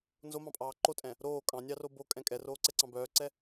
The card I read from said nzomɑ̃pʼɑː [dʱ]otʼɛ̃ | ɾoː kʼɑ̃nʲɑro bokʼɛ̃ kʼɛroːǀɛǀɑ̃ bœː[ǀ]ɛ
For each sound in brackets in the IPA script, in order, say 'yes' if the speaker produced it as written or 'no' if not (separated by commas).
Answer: no, yes